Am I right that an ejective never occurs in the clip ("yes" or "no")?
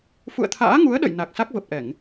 yes